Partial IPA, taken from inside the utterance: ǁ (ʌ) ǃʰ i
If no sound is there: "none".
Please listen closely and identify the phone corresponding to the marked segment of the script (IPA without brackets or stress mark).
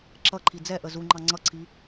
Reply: ʌ